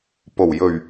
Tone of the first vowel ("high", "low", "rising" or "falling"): low